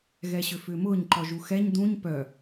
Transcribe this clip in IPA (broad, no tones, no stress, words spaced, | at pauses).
ɣɛɕʏfʏːmʊːɲ ǃɔʒuxɛɲ dũɲ pœ